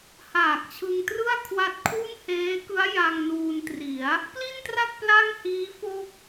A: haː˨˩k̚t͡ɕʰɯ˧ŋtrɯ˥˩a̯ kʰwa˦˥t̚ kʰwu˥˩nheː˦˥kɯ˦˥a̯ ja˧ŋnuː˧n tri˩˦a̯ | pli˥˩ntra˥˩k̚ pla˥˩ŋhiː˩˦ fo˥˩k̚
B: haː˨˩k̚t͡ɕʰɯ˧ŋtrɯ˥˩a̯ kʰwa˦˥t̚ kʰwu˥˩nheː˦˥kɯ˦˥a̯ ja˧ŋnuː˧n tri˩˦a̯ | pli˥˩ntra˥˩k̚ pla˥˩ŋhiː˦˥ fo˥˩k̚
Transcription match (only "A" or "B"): B